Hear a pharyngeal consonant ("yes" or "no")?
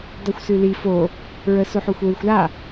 yes